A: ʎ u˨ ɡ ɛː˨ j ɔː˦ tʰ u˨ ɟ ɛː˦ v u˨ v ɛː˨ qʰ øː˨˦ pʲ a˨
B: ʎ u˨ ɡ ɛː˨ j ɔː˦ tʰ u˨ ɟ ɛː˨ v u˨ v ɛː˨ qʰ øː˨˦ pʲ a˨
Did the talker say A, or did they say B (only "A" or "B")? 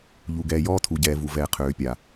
B